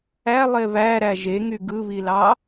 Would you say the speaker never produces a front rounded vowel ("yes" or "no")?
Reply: no